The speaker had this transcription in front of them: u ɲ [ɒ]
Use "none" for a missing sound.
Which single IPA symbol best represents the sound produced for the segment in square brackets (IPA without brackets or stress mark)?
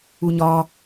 ɒ